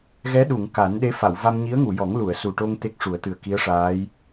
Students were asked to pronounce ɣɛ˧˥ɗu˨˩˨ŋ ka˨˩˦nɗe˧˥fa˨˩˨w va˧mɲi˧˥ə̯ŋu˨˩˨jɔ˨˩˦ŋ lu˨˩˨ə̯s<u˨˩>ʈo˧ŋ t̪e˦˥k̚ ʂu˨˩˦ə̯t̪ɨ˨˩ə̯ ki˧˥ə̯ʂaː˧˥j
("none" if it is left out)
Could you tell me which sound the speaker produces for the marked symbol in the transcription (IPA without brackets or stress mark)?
u˨˩